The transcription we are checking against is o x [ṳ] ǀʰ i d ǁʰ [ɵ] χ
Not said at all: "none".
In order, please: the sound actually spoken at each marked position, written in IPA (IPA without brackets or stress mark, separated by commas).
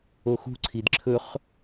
ṳ, ɵ